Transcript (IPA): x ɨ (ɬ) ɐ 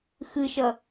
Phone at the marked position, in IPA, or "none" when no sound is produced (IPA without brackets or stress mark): ʃ